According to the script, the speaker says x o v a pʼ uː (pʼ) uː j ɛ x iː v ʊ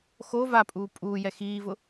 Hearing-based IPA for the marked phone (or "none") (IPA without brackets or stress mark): pʼ